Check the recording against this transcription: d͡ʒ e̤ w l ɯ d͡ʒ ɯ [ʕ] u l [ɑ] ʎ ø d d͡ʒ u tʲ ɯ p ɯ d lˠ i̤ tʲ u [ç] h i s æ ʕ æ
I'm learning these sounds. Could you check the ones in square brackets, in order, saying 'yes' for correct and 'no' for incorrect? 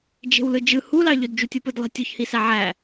no, yes, yes

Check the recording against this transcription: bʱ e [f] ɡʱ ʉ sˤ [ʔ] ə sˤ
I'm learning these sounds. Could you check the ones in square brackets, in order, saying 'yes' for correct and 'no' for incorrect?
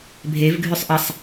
no, yes

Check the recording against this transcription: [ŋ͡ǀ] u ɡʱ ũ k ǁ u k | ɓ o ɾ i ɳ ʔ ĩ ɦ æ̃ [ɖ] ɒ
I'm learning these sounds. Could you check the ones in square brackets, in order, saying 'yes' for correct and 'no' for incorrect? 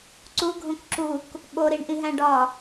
no, yes

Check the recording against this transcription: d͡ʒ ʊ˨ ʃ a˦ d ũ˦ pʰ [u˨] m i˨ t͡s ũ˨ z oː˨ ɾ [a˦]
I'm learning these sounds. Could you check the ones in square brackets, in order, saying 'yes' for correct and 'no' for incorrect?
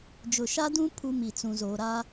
no, yes

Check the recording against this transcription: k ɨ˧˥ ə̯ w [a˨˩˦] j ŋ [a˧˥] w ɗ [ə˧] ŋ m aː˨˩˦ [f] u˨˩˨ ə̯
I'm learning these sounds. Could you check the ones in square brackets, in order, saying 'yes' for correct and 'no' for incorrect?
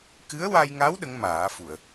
no, yes, no, yes

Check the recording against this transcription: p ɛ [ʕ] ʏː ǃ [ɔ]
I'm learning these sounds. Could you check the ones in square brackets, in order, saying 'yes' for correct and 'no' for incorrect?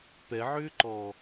yes, no

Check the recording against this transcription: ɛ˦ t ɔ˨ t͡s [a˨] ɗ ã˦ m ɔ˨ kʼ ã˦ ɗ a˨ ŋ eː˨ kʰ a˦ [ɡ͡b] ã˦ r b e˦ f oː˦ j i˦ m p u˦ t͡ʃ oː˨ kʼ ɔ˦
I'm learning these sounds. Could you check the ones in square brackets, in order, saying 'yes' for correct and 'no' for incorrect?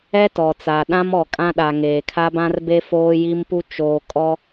yes, no

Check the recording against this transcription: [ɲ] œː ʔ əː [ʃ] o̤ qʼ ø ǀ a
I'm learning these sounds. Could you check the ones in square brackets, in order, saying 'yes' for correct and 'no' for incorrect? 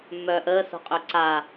no, no

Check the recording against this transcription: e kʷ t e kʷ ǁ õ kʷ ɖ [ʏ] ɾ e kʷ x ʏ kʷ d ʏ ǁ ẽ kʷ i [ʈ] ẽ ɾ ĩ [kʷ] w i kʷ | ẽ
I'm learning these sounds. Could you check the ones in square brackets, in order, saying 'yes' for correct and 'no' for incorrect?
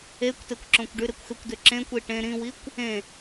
no, yes, no

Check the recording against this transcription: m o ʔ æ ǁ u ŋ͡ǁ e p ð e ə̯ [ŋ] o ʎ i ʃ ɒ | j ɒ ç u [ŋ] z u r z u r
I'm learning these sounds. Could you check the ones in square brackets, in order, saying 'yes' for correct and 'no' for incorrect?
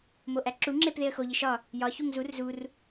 no, yes

